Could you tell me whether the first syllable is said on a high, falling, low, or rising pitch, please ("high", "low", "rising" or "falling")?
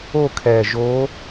falling